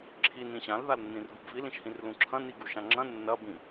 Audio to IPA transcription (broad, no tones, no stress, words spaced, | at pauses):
ǁʰin ĩɕãl ðalnːĩrɡubvil ĩʃhĩrlũǁʰɐ̃ niɡuʃãŋ͡ǁɐ̃ nːɐ bĩ